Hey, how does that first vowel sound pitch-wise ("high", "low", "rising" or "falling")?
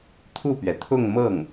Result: falling